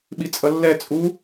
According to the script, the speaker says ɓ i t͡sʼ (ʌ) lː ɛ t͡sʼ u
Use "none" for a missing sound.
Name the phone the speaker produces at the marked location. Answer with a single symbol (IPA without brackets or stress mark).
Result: ʌ